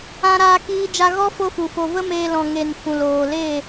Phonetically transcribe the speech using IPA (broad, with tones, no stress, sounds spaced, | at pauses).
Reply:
ã˦ ɾ aː˦ k iː˦ d͡ʒ a˦ ɣ ɔ˦ f o˦ f u˨ f o˧ v ə˦ m eː˧ l ɔ̃˨ ŋ e˨ n f ũ˨ l oː˨ l eː˦˨